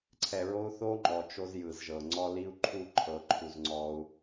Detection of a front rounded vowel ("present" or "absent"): absent